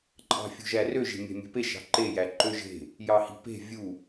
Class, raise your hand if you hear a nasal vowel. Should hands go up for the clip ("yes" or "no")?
no